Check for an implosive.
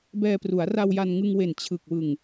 absent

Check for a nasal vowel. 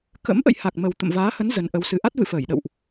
absent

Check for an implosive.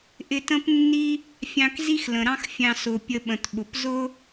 present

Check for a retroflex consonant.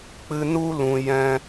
absent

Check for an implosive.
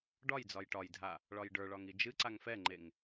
absent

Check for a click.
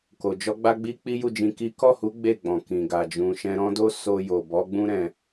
absent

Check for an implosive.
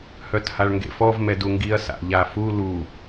absent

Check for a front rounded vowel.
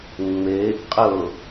absent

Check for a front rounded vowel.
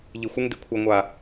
absent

